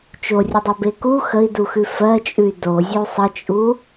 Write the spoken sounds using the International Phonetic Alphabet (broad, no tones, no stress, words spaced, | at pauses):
t͡ʃorʲudˤobe ku xəi̯duxʉ fɜt͡ʃʼʉy̯ dozʲu sˤət͡ʃʼu